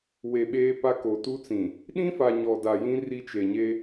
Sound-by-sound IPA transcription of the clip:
w e˨ ɓ eː˦ p a˦ k o˨ t u˦ t͡s ĩ˨ | ɗ ĩ˦ f a˨ ɲ ɔ˨ d a˨ j ĩ˦ r i˦ t͡ʃ e˨ ɲ e˦

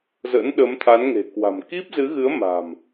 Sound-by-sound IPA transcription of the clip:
z ə̰˧˥ n ɗ ə˨˦ m t̪ʰ a˨˦ n ŋ e̤˨˩ k w a̤˨˩ m k i˦˥ p̚ z ɨ˨˦ ɣ ɨ˨˦ ə̯ m a̤˨˩ m

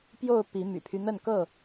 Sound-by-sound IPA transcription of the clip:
p j o˥˨ ʊ̯ p i˨˦ m y̰˨˩ pʰ y˦ n̪ ə˥˨ n k ɤ˥˨

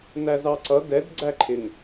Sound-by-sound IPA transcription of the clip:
n æ z ɑ ǀ ʌ d ɛ d ɡ͡ǀ æ ǃʰ ɪ ŋ

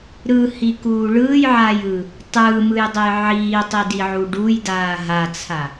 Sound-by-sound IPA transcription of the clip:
ɾ ɯ h i k uː ɭ ɯː j ʕ aː j ɯː | tˤ ɯː m ɯ j dˤ ɛ j ʕ iː tˤ i d i ʕ u ɖ u j d aː ɦ a t͡sʰ a

